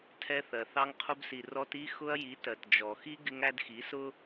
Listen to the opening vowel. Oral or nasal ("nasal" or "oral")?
oral